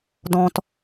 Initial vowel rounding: rounded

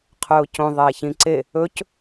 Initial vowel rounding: rounded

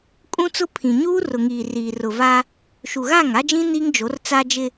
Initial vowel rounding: rounded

